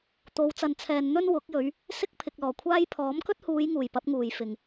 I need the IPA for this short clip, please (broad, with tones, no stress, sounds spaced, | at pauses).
t̪ o˨˧ w t͡s ɐ˨ n t͡sʰ ɛː˨ n n̪ ɵ˥ n w ʊ˨˥ k̚ j ɵ˨˧ ɥ | s ɪ˥ k̚ pʰ ɪ˨ k̚ l ɔː˨˩ kʷʰ aː˥ j pʰ ɔː˨˥ m k ɵ˥ t̚ h uː˨˧ j ŋ uː˨˩ j p ɐ˨˥ p̚ ŋ uː˨˩ j f ɪ˨˩ ŋ